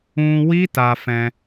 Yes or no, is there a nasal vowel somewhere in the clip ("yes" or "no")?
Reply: yes